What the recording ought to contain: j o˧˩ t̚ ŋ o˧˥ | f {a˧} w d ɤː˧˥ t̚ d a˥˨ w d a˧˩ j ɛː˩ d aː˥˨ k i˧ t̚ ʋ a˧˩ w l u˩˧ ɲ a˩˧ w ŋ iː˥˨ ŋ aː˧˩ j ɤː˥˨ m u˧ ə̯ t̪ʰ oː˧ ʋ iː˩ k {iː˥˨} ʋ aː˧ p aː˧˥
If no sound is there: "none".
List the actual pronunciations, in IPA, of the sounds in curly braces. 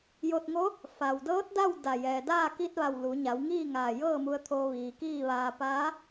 a˩, iː˥˨

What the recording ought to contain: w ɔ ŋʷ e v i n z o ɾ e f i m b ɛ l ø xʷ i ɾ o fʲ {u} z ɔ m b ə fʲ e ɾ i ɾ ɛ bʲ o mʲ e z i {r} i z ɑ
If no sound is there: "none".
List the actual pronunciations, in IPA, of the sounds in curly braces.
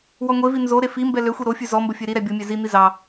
ʉ, n̪

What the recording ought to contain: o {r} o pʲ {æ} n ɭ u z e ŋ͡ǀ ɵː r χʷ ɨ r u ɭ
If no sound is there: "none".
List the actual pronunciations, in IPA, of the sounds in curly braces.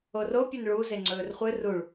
r, ɐ

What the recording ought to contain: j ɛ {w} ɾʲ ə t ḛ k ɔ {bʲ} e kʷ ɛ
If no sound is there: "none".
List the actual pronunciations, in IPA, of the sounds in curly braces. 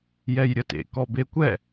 j, b

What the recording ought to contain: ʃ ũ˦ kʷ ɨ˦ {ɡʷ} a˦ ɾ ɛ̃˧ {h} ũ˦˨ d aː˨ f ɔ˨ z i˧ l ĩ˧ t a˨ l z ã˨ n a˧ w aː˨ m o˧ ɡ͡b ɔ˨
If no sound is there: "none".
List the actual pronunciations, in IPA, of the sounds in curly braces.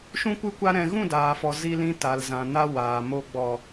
kʷ, ɣ

